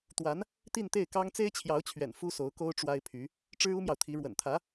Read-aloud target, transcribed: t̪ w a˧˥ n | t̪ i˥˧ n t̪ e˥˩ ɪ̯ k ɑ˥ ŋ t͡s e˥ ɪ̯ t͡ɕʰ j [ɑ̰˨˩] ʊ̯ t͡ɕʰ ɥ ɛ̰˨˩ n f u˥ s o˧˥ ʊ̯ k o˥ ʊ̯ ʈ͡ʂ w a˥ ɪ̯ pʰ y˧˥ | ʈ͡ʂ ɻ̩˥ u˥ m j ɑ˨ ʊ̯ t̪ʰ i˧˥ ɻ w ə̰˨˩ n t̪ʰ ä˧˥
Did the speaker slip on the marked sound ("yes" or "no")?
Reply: yes